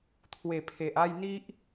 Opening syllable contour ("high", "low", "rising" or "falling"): low